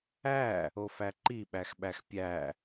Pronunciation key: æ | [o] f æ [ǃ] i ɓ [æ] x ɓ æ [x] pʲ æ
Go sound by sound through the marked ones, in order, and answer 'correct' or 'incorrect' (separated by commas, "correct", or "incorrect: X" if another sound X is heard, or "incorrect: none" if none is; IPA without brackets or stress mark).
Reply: correct, correct, correct, correct